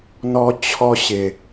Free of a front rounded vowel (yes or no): yes